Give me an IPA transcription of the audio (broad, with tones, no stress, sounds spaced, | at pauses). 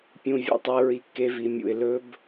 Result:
pʲ ũ˧ vʲ ṵ˧ tˤ e˧ ɹ i˧ kː e˧ v i˨ mʲ ṵ˨ ɪ̯ l ɵ˧ b